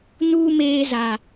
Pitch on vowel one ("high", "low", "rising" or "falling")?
high